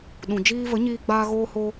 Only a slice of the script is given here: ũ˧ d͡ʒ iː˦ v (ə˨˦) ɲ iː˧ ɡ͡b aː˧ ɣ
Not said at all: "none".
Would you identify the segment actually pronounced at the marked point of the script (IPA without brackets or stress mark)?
ə˨˦